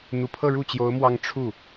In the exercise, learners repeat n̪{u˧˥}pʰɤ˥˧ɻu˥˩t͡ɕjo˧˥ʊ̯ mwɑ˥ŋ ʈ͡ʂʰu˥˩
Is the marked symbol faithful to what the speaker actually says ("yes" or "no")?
no